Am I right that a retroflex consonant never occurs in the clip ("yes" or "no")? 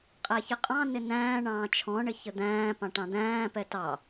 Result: no